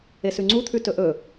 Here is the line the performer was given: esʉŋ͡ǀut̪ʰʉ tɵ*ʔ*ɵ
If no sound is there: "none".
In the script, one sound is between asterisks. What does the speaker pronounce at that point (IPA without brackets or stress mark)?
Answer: ʔ